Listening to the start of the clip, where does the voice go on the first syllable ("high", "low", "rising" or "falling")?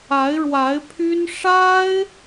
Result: rising